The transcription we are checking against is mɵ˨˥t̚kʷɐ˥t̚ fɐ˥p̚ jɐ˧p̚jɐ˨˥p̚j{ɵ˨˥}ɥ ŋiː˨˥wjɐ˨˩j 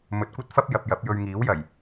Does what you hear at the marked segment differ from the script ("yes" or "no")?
yes